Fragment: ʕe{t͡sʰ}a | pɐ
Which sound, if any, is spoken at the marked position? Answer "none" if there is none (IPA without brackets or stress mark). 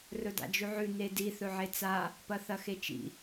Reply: t͡s